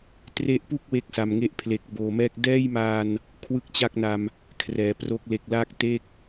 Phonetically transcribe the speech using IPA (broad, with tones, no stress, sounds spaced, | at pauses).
t r e˦˥ ʔ p u˥˩ k̚ w e˦˥ k̚ s a˨˩ m ŋ e˦˥ ʔ pʰ l e˨˩ k̚ b oː˨˩ m ɛː˦˥ k̚ d ɛː˥˩ j m aː˧ n | kʰ w ɯ˥˩ k̚ t͡ɕ a˥˩ k̚ n a˧ m | kʰ r ɛː˨˩ p r o˦˥ k̚ l e˨˩ k̚ l aː˥˩ k̚ t e˥˩ k̚